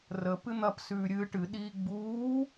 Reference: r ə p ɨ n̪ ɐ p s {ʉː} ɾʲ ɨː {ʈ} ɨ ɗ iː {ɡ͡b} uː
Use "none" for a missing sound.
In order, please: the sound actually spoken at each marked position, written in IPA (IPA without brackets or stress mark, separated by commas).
ʉː, ʈ, ɡ͡b